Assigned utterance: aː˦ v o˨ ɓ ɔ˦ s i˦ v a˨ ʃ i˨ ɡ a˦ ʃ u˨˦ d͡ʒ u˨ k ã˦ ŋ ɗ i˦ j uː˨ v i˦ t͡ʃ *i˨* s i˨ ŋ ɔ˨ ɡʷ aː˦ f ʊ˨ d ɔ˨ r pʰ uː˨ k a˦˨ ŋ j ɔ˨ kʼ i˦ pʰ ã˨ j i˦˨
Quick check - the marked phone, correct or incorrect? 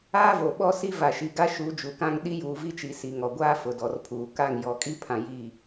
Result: correct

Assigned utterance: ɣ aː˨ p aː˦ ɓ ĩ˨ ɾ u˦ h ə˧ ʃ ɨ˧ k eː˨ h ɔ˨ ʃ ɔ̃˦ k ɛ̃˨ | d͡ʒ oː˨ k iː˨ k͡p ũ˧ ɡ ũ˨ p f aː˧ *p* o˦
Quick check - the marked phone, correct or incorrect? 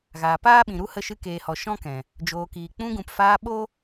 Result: incorrect: ɓ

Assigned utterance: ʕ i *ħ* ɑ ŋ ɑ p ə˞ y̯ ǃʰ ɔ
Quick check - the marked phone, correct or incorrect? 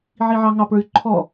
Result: incorrect: ʕ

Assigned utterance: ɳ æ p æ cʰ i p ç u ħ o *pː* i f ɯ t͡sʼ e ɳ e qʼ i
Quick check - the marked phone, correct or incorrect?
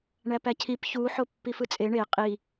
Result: correct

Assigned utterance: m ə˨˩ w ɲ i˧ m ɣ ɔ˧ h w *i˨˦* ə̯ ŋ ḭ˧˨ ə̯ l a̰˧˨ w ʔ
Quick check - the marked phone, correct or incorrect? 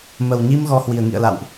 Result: incorrect: i˨˩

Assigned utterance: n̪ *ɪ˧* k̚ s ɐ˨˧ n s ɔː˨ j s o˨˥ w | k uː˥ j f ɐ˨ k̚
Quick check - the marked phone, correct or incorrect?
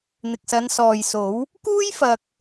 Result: incorrect: ɪ˨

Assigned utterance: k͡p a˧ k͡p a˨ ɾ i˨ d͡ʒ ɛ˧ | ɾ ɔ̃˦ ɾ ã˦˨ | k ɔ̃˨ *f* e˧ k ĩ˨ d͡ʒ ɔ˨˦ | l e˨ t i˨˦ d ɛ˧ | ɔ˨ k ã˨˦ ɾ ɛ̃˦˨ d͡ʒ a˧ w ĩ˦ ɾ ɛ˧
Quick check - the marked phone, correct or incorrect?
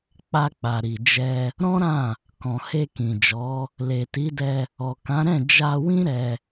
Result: incorrect: h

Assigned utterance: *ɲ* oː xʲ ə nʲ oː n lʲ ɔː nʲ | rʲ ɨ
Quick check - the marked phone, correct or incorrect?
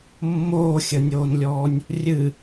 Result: incorrect: mː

